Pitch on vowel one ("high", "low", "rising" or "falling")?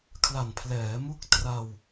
low